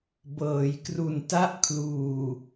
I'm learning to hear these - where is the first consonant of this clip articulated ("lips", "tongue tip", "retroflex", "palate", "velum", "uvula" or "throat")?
lips